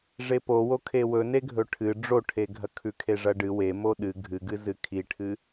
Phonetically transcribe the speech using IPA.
ʐepowo kʰewɵ neɡʱɵʈʰɨ ɖ͡ʐoʈʰeɡʱɐ kʰʉkʰeʐɐɖɨ we moɗɨ ɡʱɨɡɨzɨ kʰiʈʰɨ

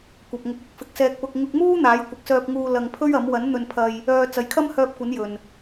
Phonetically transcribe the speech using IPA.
kʷɐ˨p̚ŋʊ˨˥k̚ʊ˨˥k̚fɪ˨˥k̚ sɛː˧k̚pʊ˧k̚ ŋʊ˧k̚muː˥ n̪aː˨˥j kʷɪ˨˥k̚sœː˧p̚ŋuː˧ lɐ˧ŋpʰɵ˥ɥɐ˨˥m wɐ˨˥n n̪ɵ˧npʰɐ˧j | œː˧ t͡sɐ˨˧jkʰɐ˥mhœː˧p̚kʷɐ˨˥n jɵ˨n

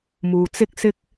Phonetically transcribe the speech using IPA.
muː˨t͡sɪ˥k̚sɪ˥k̚

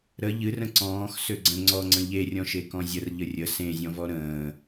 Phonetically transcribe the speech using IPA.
ɾə ʎɨrə̃ ǀɔ̃ːx søɡ͡ǀə̃ ŋ͡ǀɔŋ͡ǀə̃ ʎerʲɔ̃ʃe kɔ̃zʲər ʎərʲə sẽzʲɔ̃vɔ ɾə̃ː

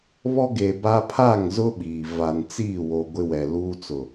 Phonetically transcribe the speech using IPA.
βɔ˦ɡe˨ba˦ pʰa˦˨ŋzʊ˦ ɓiː˨ va˨nt͡siː˦˨wo˨ ɡʷɪ˦wɛ˨luː˦t͡sʊ˨

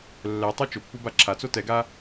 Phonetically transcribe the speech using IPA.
lːɛtˤo t͡ʃʊpːuba ǁʰat͡so tɛɡa

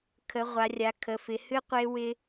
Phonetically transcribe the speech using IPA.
kʰə˩˧ʁʷa˩˧ rʲa˩˧kʰə˩˧fɪ˩˧hɨ˦ qʷe˦wɪ˦

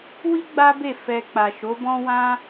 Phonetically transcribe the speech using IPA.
wi˦ ɡ͡ba˦be˦˨ fɛ˨ k͡pa˨ʃo˨˦bɔ̃˦wã˦

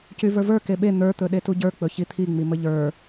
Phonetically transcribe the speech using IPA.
cyvə˞və˞ keɓe n̪ə˞t̪ɵ ɗetuɟə˞ k͡pɵçit̪ʰiŋ͡mi məʎə˞

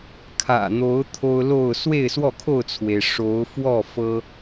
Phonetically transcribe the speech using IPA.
kʰä̰˨˩n̪o˨˦ʊ̯ t̪ʰo˦ʊ̯lo˥˨ʊ̯ swe˥˨ɪ̯swɔ˥˨kʰo˥˨ʊ̯t͡sʰwe˩ɪ̯ ʂo˨˦ʊ̯ fwɔ˥˨fɤ˦

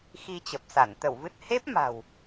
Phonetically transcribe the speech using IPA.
xi˧t͡ɕə˨˩p̚sa˧˩n t̪ə˧˩wvɨ˦˥t̚ he˦˥p̚ ma̤˨˩w

